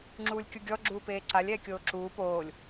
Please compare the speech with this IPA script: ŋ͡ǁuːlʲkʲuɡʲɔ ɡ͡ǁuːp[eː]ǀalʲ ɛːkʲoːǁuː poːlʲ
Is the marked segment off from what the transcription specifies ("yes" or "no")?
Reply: no